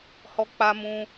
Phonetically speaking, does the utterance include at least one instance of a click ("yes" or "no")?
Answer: no